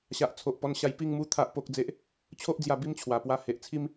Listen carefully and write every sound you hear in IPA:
ɕ a˨ ʔ t͡sʰ o˨ ʔ p ɔ˧ n ɕ a˧ j p i˥˧ ŋ m u˦ t̪ʰ a˦ ʔ p o˦ k̚ d͡z e˦ ʔ | t͡ɕʰ o˦ ʔ d͡z j a˧ b i˦ m t͡ɕʰ w a˨˩ p w a˧ h e˨ ʔ t͡sʰ i˦ m

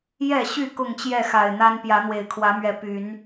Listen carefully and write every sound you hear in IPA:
j ɛ˥˨ ɕ y˥˨ k ʊ˥˨ ŋ t͡ɕ j ɛ˥˨ x a˨˩ ɪ̯ n̪ a˦ n p j ä˨˦ n̪ w e˨˩ ɪ̯ kʰ w ä˨˦ m ɥ ɛ˨˦ p y˨˦ n

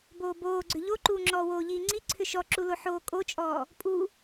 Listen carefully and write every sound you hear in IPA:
b oː b oː ɡ͡ǀ ʏ ʎ o ǃ uː ŋ͡ǁ ɔː w oː ʎ iː ŋ͡ǀ i ǀʰ ʏ ʃ ɔ ǁ u l o ħ oː kʼ o t͡ʃʼ ɔː | pʼ u

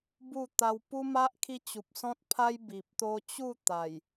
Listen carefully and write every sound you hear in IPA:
b u˥˧ t̪ a˧ w p u˦ m a˦ ʔ kʰ i˦ t͡ɕ u˨ p̚ s ɔ̃˦ t̚ pʰ a˦ j b i˨ p̚ t̪ o˦ t͡ɕ u˥˧ t̪ a˨˩ j

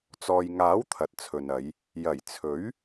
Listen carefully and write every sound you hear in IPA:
t͡s ɔː˨ j ŋ aː˨˥ w t̪ʰ ɐ˨ t̚ t͡sʰ ɵ˨ n ɐ˨˧ j | j ɐ˨˩ j t͡sʰ ɵ˨˥ ɥ

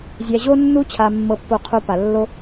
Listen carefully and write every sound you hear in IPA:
zʲ æ˧ ʑ o˥ nː u˥ t͡ɕʰ a˧ mː ɤ˧ pː o˧ qʰ o˧ p a˩ lː o˧

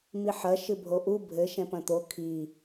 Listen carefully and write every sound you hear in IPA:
m i ħ ɐ ʃ ɨ bʱ o ʔ u bʱ ɘ ʃ ɛ̃ p ɐ̃ t̪ o kʰ i

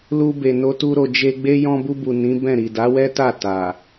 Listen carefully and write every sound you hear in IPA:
l u˧ b e˨ n o˧ t u˧ ɾ o˨ d͡ʒ e˧ ɡ͡b e˦ j ɔ̃˧ b u˧ b u˨ n ĩ˨˦ b ɛ̃˦˨ ɾ i˨ d a˨˦ w ɛ˦ t a˦˨ t a˨

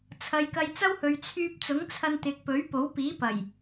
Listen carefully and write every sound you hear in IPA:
t͡sʰ ɐ˨ j k ɐ˧ j t͡s ɐ˥ w h ɵ˨ ɥ t͡sʰ yː˧ p̚ t͡s ʊ˨˥ ŋ t͡sʰ ɐ˧ n t̪ ɪ˨ k̚ p ɵ˨˥ ɥ p o˨˥ w p iː˨˥ p ɐ˨˩ j

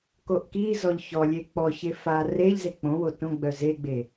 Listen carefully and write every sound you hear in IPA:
k o ʔ k i z ɔ ʎ ç ɔ lʲ e k͡p ɔ ç e f a r e ʎ z e k͡p õ w o t õ ɡ͡b œ z e ɡ͡b e

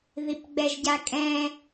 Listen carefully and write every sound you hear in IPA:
ð i p ɡ͡b ɛ ʒ ɟ a kʼ ɛ̃

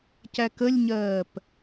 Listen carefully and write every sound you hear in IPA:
c æ k ə lʲ ɲ ɜː p

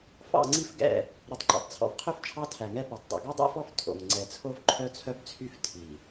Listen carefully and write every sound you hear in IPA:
f ɑ̰˦˨ ŋ͡ǀ i˦ f ɡ ɛ̰˦˨ | ɾ ɵ˨ tˤ ǃ ɑ̰˨ tˤ t͡sʰ ɔ̰˨ v qʰ ø˦ f t͡ʃʰ ɑ˦ tʰ æ˨ ŋ ɛ˦ p ø˨ tˤ dˤ o̰˨ ɡ ɔ˦ dˤ ɛ̰˦ f ɔ˦ f tʰ o̰˨ ŋ ŋ͡ǀ ɛ˨ t͡sʰ o˦ v ǃʰ œ˦ t͡sʰ œ˦ b t͡sʰ y˦ f tʰ i˨

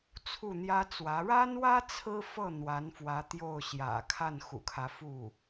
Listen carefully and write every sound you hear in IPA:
t͡sʰ u˥˩ n̪ j ä˥ t͡s w ä˧˥ ɻ a˥ n w ä˥ t͡sʰ ɹ̩˥ f ɤ˥˩ n̪ w a˧˥ n f w ä˧˥ t̪ j o˥˩ ʊ̯ ɕ j ä̰˨˩ kʰ a˥˩ n x ṵ˨˩ kʰ ä˦ f u˥˩

